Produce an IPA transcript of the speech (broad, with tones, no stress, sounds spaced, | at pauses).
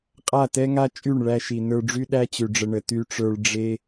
qʼ a˦˨ t ɛ˦ ŋ a˦ t͡ʃʼ y˦˨ ɳ ɭ æ˧ ʃ i˨ n ə˞˧ ɖ͡ʐ y˦ ɗ æ˦ t͡ɕ ʉ˨ ɖ͡ʐ ə˧ ɳ ə˨ t y˧ ʈ͡ʂ ə˞˧ ɭ ɖ͡ʐ e˦